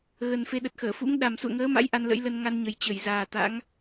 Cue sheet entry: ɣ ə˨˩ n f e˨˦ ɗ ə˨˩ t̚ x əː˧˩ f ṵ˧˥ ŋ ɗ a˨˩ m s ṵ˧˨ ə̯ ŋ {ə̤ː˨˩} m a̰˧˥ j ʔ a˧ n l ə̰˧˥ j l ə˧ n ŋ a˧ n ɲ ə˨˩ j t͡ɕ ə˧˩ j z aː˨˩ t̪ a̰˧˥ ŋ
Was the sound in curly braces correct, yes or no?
no